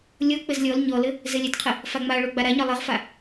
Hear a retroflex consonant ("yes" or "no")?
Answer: yes